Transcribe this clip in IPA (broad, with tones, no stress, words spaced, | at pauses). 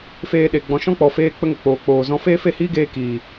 feː˧ɗe˨ ɡ͡bɔ̃˨ ʃɔ̃˦k͡pɔ˨ feː˦k͡pə˦ŋə˨ k͡poː˨k͡poː˨zɔ̃˧ feː˦fe˦˨hiː˦ɡeː˧ kiː˨